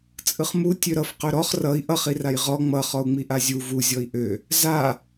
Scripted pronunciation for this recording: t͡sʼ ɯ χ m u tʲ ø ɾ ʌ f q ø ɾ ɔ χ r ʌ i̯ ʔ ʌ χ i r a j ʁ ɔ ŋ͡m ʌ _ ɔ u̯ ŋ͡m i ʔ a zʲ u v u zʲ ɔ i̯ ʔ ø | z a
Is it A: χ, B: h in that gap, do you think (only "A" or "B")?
A